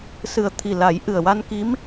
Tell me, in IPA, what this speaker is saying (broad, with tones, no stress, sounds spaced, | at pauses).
s ɨ˨˩ ə̯ t̪ʰ i˨˩ l a˨˩˦ j ʔ ɨ˨˩ ə̯ w a˧ n k i˧˥ m